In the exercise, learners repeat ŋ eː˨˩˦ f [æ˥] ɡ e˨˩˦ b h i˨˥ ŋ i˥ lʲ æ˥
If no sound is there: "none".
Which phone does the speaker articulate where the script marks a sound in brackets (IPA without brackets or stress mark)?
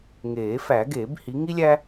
æ˨˩˦